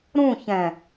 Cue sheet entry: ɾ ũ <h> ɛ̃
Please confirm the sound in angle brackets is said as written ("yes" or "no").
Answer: no